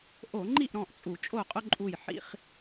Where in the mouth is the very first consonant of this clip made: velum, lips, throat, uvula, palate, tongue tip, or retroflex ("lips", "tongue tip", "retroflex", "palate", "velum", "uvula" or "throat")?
throat